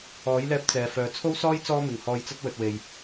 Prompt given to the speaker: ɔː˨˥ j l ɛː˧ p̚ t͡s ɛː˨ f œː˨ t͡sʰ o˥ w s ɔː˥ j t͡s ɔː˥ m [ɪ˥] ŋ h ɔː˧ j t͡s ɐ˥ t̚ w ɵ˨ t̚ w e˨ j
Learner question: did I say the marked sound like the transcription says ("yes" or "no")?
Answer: no